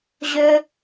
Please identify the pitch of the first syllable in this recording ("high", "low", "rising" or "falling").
high